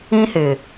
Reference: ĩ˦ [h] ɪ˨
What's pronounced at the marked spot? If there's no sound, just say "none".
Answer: h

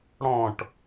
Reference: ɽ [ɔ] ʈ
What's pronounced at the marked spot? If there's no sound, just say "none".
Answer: ɔ̃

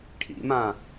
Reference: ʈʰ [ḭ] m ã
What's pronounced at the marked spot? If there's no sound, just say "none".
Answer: ḭ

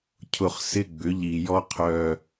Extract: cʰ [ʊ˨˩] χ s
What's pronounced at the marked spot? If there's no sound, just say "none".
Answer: ʊ˨˩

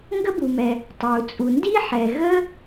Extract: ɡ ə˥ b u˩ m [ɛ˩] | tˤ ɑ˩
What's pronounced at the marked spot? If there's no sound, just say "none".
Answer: ɛ˩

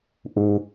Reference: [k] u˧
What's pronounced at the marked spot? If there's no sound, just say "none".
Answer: ʔ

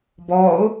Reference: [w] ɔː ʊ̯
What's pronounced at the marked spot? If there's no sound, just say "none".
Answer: b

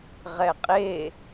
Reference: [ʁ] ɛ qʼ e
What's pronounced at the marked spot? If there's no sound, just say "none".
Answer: ʁ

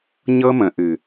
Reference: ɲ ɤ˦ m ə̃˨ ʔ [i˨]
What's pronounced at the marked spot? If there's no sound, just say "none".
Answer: ɨ˨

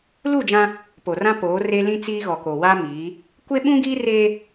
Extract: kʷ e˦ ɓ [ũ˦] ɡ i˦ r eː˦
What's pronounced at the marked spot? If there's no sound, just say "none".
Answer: ũ˦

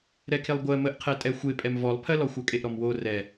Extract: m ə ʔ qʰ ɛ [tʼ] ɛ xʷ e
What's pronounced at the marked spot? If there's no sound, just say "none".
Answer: tʼ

